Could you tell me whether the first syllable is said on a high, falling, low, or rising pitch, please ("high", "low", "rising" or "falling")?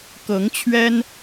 rising